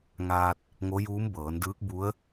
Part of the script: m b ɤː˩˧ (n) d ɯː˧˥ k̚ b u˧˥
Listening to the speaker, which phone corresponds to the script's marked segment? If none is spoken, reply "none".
n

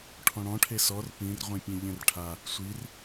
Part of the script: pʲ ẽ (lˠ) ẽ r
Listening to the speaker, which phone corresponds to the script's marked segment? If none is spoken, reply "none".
ʎ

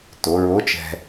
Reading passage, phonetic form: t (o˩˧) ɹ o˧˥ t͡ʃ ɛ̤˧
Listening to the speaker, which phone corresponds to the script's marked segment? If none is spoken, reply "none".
o˩˧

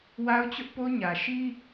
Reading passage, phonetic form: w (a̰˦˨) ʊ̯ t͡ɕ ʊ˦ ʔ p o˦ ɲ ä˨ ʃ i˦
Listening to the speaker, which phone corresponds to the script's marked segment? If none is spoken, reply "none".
a˦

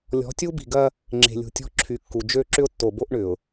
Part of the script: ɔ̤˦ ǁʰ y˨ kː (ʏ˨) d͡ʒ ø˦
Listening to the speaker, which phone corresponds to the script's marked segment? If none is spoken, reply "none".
u˨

